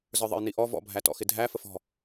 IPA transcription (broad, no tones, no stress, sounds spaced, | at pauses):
z ə˞ ðˤ ə̰ j n i ʔ ɔ v ɔ̰ bʱ æ t ɔ̰ x ɪ dʱ æ f ə f ɔ̤